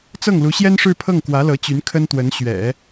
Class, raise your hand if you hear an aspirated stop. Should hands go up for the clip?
yes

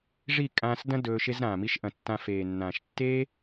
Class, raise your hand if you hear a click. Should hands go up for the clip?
no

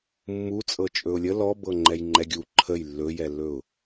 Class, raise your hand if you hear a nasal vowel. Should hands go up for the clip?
no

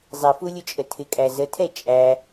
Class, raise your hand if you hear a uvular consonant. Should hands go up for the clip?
no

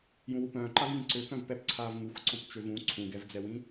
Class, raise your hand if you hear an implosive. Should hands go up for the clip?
no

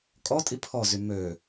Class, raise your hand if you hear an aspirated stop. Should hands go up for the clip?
yes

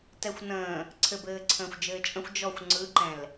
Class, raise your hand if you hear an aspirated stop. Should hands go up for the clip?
yes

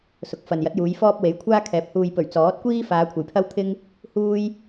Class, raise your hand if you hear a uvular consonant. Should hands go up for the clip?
no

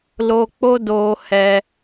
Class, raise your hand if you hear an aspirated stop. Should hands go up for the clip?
no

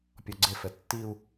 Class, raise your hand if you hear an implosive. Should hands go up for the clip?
no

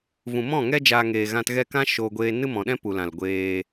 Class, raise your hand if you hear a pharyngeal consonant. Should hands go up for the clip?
no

